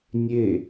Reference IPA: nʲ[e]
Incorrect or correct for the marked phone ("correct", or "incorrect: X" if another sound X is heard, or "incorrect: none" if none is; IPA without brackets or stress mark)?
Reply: correct